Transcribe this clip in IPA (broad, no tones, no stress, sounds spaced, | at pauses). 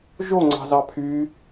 ʒ o ŋ͡ǀ ɑ̤ z ɑ pʰ y